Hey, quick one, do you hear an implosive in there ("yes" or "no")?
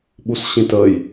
yes